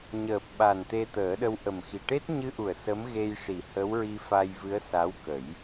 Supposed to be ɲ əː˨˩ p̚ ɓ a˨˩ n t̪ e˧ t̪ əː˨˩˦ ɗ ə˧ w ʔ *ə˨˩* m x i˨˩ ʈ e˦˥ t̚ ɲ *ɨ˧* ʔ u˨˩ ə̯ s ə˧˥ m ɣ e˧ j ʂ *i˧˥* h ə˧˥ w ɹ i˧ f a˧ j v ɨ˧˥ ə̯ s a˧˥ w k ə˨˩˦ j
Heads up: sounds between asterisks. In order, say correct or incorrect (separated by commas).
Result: correct, correct, incorrect